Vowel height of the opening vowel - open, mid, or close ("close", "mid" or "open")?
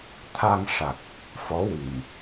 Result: open